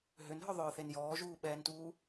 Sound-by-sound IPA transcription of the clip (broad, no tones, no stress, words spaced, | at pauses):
ɦʏnɦœðˤœːθen jɔːʒuːɓɛːntuː